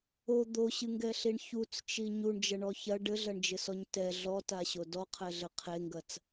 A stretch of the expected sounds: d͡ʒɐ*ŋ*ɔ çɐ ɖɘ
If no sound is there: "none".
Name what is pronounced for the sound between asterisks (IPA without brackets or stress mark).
ɳ